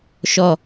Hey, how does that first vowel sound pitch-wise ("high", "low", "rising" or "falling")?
low